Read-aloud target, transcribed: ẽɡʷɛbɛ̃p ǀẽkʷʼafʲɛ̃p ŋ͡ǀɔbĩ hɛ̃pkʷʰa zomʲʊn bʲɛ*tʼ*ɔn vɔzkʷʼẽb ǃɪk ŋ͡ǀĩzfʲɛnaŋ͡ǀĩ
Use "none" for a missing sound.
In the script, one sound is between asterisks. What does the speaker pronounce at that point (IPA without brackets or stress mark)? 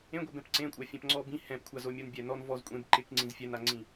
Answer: n